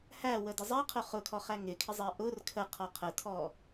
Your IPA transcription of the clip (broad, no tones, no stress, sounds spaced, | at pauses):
h æ w ə d ɪ zˤ ɛ qʰ ʊ χ ʊ kʰ ɔ χ æ ŋ ɪ kʰ ɪ zˤ ɛ ʔ ʊ r kʰ ə qʰ ɔ qʰ ə tʰ ɔ